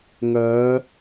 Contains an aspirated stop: no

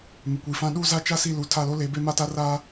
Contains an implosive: yes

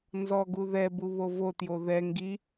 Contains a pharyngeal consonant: no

